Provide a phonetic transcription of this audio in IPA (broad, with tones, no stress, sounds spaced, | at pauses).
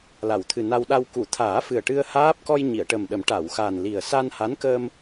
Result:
l a˨˩˨ w t̪ʰ ɨ˨˩ n a˧ w ɗ a˧ w k u˨˩˨ t̪ʰ aː˨˩˦ f ɨ˨˩ ə̯ ʈ ɨ˧ ə̯ h aː˦˥ p̚ k ɔ˧ j ɲ i˨˩˨ ə̯ ʈ ə˨˩ m ɗ ə˨˩˦ m ʈ a˨˩˨ w x a˨˩ n l i˨˩ ə̯ s a˧ n h a˧˥ n k əː˧ m